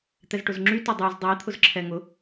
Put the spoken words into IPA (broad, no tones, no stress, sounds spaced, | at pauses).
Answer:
t̪ ɛ z ʈ ʊ z ŋ͡ǁ y t ʊ dˤ y z dˤ i t̪ʰ ʊ z ǁʰ ɛ ŋ ʊ